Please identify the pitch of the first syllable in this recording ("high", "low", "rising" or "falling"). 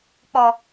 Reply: low